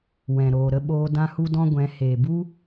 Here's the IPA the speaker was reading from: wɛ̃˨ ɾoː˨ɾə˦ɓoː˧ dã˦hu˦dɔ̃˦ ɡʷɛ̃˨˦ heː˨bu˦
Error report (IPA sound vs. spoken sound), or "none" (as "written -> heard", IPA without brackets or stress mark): ə˦ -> ə˧